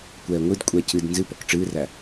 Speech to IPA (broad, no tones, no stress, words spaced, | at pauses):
kʷɛːŋʷɨdkʷʼɛ cɨd nzɨpɔk ʈ͡ʂɨːræ